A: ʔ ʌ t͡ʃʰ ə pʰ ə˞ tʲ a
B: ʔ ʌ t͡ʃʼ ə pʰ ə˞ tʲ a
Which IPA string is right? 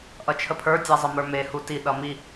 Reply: A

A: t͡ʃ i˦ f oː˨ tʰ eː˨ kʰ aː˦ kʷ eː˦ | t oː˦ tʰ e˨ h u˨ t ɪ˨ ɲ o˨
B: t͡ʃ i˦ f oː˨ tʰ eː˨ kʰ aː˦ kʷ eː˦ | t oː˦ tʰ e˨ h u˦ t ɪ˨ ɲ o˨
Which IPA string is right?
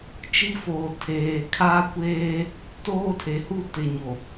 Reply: B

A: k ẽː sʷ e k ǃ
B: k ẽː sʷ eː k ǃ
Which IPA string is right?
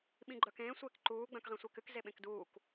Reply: B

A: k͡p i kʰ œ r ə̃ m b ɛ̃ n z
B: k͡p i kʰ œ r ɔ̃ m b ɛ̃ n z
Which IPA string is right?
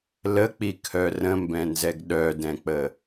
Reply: A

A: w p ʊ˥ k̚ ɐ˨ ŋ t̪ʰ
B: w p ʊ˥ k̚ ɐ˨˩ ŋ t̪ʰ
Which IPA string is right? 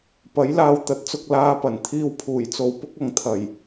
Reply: A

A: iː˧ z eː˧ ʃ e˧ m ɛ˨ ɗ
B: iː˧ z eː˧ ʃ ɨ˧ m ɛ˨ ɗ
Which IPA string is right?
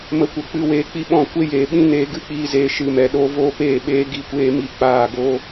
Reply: B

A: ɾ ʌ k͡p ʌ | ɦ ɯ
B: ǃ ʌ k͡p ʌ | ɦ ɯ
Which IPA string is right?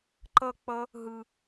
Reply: B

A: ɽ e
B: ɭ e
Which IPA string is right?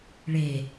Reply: B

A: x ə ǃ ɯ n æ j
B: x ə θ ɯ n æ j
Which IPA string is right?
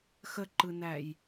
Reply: A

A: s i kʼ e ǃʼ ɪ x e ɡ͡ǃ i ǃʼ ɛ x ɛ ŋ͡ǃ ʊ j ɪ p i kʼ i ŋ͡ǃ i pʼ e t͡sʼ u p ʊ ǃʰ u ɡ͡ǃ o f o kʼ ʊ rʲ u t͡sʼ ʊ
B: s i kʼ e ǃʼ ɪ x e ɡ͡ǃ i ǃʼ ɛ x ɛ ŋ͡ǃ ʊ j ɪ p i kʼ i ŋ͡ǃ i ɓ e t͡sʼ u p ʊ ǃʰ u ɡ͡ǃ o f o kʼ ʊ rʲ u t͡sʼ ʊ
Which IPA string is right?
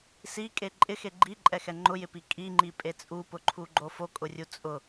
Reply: A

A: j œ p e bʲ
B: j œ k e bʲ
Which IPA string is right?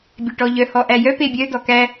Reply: A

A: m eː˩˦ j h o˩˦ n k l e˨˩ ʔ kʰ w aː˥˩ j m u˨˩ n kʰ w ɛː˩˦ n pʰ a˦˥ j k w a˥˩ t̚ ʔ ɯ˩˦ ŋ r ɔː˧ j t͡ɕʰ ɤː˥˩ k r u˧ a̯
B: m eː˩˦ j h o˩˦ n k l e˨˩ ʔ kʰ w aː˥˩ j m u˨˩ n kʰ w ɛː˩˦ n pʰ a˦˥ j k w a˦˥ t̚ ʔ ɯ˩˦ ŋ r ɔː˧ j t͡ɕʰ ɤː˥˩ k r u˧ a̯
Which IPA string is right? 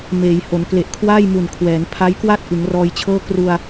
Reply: A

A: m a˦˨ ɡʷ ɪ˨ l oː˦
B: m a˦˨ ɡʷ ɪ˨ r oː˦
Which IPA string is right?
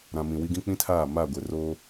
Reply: B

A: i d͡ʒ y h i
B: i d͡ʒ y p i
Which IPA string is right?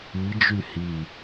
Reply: A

